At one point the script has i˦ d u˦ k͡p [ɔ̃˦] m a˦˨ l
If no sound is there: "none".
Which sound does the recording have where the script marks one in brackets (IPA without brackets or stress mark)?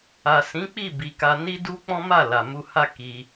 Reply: ɔ̃˦